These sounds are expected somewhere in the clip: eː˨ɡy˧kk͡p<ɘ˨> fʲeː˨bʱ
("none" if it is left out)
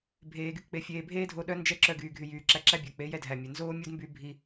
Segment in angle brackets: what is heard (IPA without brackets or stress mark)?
e˨